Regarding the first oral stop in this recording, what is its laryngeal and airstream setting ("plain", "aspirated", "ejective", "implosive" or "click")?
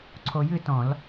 click